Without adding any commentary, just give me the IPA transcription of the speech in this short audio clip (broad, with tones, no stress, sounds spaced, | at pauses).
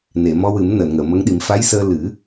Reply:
n e˨˩˨ m ɔ˧ w ɨ˨˩˦ m n əː˨˩˨ n ŋ əː˨˩˨ m ə˧˥ ŋ ɗ i˨˩˦ m f a˧˥ j s əː˧ l ɨ˨˩˦